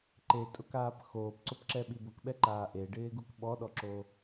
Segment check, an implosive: present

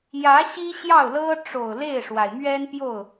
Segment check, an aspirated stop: absent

